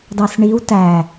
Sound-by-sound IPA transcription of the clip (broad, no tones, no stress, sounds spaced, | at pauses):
d ɑ s ɳ i w t æ